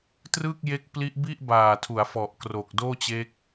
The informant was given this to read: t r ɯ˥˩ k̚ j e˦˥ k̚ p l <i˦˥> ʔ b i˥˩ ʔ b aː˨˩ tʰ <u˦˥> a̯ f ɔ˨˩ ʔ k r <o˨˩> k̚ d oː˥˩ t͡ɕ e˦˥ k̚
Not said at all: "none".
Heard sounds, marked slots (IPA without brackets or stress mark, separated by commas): i˦˥, u˩˦, o˨˩